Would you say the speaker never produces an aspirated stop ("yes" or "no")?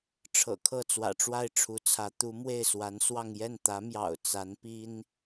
no